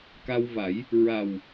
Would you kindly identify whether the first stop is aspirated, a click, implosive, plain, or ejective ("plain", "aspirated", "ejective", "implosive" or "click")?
plain